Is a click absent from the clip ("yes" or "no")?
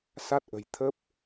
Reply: yes